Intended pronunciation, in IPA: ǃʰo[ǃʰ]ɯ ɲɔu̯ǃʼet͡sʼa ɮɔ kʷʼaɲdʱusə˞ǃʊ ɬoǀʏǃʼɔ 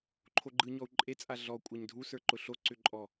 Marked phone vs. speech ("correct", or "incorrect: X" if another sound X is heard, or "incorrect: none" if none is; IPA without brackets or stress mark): incorrect: ɡ͡ǃ